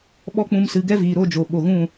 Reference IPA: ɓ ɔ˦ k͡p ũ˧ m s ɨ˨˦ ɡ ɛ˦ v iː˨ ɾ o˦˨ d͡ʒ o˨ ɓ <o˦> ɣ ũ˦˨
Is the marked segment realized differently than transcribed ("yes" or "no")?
yes